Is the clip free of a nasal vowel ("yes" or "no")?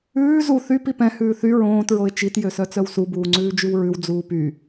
no